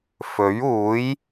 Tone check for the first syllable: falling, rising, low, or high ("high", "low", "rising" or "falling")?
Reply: rising